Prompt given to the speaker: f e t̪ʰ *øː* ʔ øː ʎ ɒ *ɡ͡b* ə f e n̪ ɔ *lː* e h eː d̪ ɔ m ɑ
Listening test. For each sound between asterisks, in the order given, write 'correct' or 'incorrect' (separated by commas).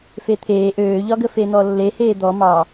incorrect, incorrect, correct